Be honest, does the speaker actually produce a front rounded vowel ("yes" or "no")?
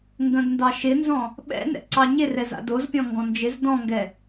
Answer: no